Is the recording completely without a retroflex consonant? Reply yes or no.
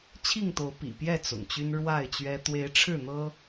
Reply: no